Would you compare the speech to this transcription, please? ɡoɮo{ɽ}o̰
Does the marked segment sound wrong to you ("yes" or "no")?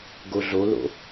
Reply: yes